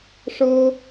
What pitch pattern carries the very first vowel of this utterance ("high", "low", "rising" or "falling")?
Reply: high